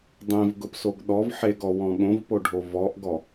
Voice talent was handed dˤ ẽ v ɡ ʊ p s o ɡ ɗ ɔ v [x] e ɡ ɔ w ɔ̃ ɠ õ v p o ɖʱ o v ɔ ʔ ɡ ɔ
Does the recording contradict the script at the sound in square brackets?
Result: yes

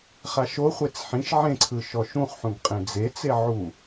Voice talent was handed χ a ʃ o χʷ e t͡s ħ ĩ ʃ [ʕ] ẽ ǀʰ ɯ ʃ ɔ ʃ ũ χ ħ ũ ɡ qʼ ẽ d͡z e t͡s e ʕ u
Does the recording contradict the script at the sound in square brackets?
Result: no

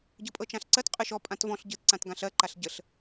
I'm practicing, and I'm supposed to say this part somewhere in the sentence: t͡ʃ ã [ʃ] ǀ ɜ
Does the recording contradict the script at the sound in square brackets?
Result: yes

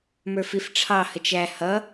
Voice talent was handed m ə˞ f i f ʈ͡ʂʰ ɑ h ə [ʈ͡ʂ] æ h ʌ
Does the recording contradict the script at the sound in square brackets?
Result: yes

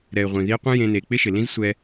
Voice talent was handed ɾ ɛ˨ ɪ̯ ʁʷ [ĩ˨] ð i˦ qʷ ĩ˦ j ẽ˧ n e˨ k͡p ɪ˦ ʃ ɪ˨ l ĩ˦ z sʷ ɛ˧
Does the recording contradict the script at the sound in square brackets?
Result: no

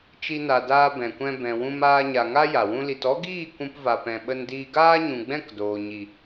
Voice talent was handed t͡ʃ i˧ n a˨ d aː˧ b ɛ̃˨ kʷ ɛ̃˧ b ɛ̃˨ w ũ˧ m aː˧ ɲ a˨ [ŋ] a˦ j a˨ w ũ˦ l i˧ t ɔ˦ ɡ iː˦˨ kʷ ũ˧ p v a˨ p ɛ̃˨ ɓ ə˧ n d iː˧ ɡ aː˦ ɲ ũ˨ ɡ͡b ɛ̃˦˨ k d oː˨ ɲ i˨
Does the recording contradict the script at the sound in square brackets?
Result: no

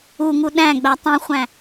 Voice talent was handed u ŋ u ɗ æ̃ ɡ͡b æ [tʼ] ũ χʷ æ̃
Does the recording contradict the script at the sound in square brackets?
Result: yes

